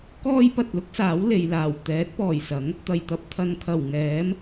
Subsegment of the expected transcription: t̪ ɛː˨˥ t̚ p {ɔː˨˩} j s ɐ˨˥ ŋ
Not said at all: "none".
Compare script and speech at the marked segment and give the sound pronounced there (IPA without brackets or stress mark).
ɔː˨˩